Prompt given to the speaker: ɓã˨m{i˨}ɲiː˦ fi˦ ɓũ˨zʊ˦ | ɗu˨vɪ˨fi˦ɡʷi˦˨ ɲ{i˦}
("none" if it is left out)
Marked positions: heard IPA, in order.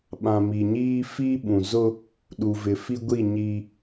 i˨, i˦

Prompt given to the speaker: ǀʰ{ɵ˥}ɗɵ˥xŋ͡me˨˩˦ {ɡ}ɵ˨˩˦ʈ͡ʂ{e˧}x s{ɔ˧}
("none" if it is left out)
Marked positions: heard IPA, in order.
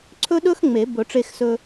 ɵ˥, b, e˧, ɵ˧

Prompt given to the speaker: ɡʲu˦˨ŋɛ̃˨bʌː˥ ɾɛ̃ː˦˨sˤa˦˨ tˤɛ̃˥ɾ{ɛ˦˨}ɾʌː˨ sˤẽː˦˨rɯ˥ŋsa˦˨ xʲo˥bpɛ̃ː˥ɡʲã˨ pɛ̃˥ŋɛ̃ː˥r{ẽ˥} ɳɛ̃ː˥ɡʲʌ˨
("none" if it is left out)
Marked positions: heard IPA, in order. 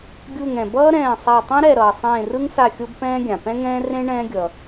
ɛ˦˨, ẽ˥

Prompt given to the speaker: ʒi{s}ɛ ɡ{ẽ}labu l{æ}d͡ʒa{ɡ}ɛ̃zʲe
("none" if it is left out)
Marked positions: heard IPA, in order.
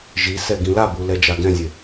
s, ĩ, ɛ, ɡ

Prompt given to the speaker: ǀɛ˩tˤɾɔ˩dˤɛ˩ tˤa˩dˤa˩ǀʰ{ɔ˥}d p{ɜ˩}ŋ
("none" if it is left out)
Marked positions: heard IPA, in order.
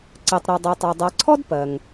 ɔ˥, ɜ˩

